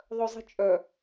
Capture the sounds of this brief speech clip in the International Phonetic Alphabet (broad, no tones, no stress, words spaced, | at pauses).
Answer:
ðˤœzˤi̤t͡ʃʼœ